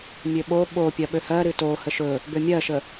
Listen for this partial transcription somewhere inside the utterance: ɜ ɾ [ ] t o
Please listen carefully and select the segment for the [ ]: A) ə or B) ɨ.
B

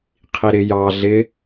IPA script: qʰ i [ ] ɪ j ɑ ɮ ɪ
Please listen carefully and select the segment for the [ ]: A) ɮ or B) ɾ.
B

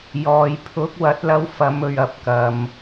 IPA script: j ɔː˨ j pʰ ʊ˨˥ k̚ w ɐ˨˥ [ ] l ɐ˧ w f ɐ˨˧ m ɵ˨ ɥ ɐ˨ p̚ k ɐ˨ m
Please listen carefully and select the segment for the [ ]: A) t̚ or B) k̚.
A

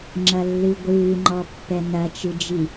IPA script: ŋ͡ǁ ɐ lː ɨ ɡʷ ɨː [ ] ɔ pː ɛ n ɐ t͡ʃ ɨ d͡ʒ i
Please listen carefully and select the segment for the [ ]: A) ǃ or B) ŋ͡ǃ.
B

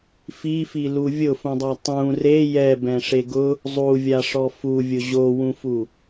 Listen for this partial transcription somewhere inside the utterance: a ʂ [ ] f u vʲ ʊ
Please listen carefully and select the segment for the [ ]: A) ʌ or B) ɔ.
B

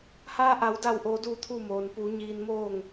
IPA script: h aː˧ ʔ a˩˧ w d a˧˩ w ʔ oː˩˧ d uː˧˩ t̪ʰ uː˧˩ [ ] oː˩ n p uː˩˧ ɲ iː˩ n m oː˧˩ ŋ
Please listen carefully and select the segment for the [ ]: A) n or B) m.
B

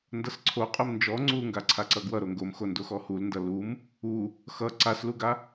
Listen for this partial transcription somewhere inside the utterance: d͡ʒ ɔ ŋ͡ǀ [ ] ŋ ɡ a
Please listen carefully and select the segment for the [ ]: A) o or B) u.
B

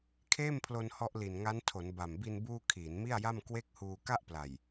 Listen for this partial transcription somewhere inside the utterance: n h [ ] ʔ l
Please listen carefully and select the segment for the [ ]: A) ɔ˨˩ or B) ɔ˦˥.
B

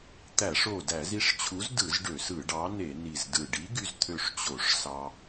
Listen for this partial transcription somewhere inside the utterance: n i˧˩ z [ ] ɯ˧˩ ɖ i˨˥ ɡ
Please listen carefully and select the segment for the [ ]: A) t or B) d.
B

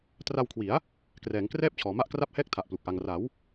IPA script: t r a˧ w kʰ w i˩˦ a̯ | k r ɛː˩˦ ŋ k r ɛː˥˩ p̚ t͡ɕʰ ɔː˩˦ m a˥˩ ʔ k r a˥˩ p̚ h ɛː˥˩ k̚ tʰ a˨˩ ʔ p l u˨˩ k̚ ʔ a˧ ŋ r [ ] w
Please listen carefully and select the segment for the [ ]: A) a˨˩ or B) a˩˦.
B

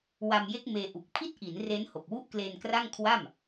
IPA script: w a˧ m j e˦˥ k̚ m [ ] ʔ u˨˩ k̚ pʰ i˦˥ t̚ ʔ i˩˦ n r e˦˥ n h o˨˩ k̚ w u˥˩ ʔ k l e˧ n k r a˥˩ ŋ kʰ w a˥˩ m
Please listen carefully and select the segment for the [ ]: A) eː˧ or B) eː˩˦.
A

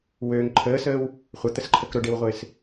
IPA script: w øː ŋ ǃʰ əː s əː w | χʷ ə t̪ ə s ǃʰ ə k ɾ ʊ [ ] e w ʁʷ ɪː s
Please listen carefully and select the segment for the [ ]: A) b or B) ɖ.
B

